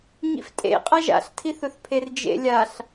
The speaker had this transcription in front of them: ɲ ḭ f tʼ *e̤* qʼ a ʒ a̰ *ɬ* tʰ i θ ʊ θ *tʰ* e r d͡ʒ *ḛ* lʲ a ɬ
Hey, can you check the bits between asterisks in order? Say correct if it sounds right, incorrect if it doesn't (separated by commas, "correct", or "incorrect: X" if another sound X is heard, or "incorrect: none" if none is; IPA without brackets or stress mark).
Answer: incorrect: ḛ, correct, incorrect: pʰ, correct